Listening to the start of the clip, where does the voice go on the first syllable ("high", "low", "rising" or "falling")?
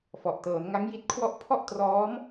low